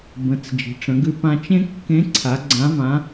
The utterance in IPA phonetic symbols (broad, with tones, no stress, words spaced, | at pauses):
bə̃˩˧t͡s d͡ʒi̤˩ʈ͡ʂə̃˩˧ɡʉ˧ pã˧t͡ʃẽ˥ kːẽ˧˥ ǀʰa˩˧ ɡ͡ǀã˧˥vã˧˥